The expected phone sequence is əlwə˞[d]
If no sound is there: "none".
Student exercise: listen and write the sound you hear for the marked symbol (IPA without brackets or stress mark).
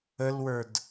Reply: d